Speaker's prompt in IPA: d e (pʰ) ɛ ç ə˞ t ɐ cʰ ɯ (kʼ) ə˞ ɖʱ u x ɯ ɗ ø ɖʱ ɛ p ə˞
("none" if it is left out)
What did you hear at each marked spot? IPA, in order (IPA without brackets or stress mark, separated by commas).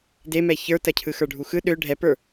m, x